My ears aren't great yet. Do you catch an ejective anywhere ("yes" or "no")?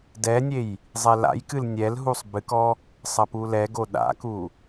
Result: no